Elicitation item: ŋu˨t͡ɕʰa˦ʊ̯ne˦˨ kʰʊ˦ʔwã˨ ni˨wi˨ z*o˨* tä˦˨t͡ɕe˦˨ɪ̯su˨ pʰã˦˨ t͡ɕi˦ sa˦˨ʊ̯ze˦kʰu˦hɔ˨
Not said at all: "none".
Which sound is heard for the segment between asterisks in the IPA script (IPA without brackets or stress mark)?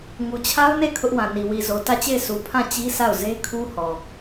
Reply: o˨